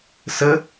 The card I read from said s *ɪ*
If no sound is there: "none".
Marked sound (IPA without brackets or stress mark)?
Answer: ə